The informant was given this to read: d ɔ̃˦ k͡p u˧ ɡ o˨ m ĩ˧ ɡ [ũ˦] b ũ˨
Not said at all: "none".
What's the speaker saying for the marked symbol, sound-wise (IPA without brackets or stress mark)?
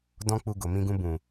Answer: ũ˧